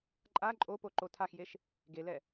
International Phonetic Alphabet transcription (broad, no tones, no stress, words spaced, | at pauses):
ǃʼa ǃʼopo ǃotʰaxjeʃ | ɡelɛ